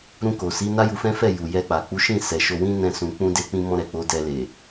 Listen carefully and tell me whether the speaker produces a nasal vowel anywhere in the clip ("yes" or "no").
yes